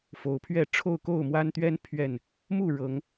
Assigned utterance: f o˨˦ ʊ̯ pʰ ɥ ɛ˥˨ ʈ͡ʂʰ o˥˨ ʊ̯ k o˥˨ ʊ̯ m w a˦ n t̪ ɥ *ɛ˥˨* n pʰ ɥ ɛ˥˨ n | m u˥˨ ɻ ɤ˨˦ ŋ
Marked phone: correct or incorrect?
incorrect